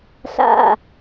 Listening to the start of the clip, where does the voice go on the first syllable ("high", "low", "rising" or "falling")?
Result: falling